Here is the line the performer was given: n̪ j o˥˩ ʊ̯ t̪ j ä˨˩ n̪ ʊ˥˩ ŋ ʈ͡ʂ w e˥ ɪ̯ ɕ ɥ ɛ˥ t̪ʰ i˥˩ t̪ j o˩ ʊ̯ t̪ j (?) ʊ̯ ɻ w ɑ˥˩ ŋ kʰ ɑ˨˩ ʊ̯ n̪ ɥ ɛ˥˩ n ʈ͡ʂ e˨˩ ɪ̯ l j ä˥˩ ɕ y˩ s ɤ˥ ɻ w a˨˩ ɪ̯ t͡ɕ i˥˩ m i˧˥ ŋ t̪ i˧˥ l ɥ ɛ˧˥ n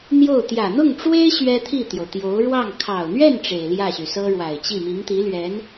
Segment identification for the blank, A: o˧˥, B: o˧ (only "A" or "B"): A